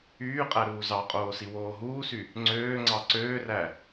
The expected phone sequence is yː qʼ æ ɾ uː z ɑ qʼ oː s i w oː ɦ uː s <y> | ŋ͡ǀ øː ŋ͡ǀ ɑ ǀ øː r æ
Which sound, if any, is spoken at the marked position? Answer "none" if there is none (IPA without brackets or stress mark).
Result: y